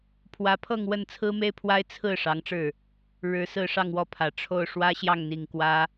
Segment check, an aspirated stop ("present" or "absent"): present